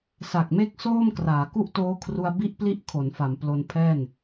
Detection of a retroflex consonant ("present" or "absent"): absent